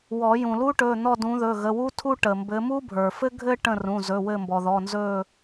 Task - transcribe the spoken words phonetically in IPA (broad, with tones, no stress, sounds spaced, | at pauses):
w ɔ˨˩˦ j ũ˩ l u˥ ʈ ɵ˩˧˩ n̪ ɔ˦˨ d ũ˨˦ ð ɵ˩˧˩ ɣ ə˩˧˩ w u˥ tʰ u˥ ʈ ə˩ m b ɘ˨˦ m u˥ bʱ ə˞˩ f ɘ˥ ɡʱ ɘ˥ ʈ ə̃˦˨ r ũ˩˧˩ z ɵ˩˧˩ w ɘ˦˨ m b ɔ˩ ð ɔ˩˧˩ n z ɵ˦˨